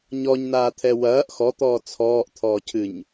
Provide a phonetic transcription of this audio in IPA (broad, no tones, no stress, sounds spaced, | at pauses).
ɲ ɔ ɲ n aː t̪ʰ ɛ w ɐː ʔ x ɔ t̪ ɔː t͡sʰ ɔː ʔ t̪ʰ ɔː cʰ ɨ ɲ